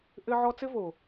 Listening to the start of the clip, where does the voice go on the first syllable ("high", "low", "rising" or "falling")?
high